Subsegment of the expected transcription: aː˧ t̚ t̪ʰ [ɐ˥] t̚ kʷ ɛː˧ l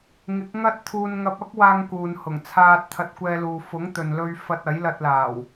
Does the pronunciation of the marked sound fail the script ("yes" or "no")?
yes